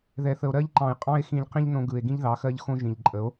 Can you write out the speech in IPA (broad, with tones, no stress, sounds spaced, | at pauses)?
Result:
ð ɛ˨ θ ə˨ o̯ ɾ ɜ˦ ʎ ǃ ɑ̃˨ e̯ qʼ ɑ̃˦ e̯ x ĩ˧ ʎ q ĩ˦ ʎ n õ˧ ɡ ɯ˨ e̯ ɡ ĩ˦ ʎ ð ɑ˨˦ x ɜ˦ ʎ x õ˦ ʒ ĩ˨ ʎ ǃʼ ə˨˦ o̯